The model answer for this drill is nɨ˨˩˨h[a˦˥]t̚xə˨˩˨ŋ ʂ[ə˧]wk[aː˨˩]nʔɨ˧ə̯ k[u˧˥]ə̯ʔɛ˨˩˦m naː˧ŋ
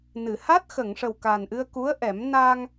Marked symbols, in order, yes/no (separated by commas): yes, no, yes, yes